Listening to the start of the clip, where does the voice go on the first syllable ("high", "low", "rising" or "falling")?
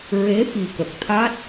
rising